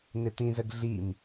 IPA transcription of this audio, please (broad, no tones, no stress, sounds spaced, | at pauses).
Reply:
n̪ ɪ t̪ ĩ z ə ɡ ɮ i m